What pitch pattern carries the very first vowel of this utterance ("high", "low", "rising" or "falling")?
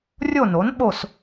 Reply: falling